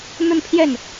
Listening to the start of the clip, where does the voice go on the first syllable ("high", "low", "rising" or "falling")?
falling